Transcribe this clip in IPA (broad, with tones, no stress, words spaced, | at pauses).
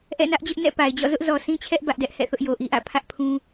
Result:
ʔɛ̰˦˨nä˦ʔd͡ʑʊ˦ʔ nɛ̰˦˨pa˨ɪ̯d͡ʑɔ̰˦˨ zʊ˦ʔzɔ˨sĩ˦t͡ɕʰɛ˦ʔ bä˦ʔdɛ˦ʔhɛ̰˦˨θʊ˦ʔ jo˨ʔi˦ʔä̰˦˨ pʰä˦ʔ pʰũ˦